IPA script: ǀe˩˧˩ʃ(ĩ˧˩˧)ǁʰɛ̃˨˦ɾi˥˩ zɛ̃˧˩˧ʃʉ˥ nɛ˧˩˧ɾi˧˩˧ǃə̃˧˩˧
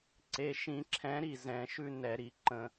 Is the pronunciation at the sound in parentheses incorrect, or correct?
correct